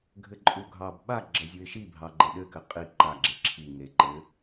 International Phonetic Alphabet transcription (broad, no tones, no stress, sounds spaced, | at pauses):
ɡʱ ɘ ǃʼ u ɡʱ ɑ b ɓ a ɡ͡ǁ ɐ zʲ u ɪ̯ ʃ i bʱ ɑ ɡ͡ǃ ɘ ɗ ɘ k ɘ qʼ i ǃ a ɡ͡ǁ e ǁʰ i ŋ e ǃ ɘ